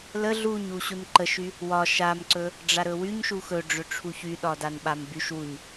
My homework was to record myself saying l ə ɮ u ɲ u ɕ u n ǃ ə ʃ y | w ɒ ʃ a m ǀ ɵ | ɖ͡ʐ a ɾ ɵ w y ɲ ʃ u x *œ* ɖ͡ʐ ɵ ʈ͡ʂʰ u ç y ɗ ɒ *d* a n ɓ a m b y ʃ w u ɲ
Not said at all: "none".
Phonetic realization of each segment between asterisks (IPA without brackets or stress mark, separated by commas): ɵ, d